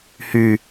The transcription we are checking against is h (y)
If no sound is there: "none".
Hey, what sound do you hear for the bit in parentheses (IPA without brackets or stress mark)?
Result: y